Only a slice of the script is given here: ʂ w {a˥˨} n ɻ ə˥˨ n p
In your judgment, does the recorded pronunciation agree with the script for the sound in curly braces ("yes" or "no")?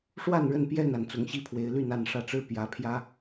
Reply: yes